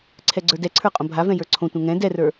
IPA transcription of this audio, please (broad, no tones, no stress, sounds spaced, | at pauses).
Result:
ǀʰ ɛ ɡ͡ǀ ə˞ d ɛ ǀʰ ə˞ qʼ õ bʱ a v ɛ̃ j ə˞ ǀʰ õ tʷ ɛ̃ ŋ ɛ̃ d ɛ r ə˞